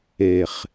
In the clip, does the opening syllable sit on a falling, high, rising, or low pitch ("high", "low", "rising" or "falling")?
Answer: low